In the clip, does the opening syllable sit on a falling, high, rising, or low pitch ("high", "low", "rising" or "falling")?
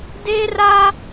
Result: high